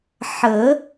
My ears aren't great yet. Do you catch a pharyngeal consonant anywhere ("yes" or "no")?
yes